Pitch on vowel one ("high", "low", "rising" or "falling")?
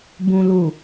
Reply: low